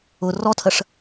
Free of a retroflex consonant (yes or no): no